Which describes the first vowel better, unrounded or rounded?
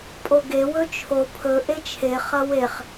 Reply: rounded